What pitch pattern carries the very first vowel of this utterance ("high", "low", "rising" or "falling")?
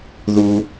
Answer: high